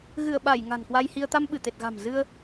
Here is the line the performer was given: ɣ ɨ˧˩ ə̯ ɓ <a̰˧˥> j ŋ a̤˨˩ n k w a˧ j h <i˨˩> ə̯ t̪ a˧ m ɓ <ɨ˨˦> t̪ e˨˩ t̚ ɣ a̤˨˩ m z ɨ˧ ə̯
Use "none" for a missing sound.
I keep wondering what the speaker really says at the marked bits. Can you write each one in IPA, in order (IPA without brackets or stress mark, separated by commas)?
a˧˩, i˧, ɨ˧˩